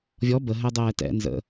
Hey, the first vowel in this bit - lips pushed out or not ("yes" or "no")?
yes